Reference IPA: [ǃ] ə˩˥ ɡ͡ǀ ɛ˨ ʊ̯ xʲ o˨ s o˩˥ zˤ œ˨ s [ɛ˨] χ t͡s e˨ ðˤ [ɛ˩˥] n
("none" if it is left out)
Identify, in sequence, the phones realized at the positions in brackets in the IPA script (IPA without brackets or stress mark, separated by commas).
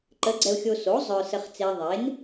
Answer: ǃ, ə˨, e˩˥